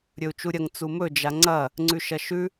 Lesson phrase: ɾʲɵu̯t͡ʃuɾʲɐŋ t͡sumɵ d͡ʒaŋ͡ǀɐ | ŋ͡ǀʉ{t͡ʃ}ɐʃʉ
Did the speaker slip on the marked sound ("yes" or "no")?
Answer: yes